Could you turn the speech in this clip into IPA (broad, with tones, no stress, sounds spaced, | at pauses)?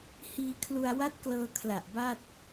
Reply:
h iː˧ kʰ l u˧ a̯ w a˦˥ t̚ k l ɤː˧ kʰ l a˨˩ ʔ b a˥˩ t̚